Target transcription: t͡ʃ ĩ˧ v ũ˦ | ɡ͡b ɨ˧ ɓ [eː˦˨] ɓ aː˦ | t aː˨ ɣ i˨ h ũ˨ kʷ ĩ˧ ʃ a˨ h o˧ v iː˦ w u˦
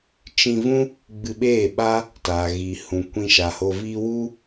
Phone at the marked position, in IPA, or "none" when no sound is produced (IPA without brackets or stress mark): eː˦˨